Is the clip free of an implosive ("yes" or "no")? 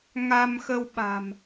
no